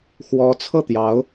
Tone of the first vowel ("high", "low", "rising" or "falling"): rising